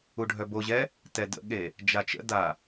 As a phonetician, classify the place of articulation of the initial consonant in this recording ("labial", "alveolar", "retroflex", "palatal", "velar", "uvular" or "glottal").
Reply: retroflex